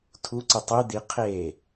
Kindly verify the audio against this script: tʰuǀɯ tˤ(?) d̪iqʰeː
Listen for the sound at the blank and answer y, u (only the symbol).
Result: y